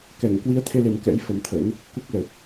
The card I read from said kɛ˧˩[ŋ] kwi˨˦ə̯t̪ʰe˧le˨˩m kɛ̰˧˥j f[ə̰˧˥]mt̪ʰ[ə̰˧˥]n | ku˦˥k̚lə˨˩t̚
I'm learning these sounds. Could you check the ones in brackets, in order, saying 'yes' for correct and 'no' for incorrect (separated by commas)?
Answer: yes, no, yes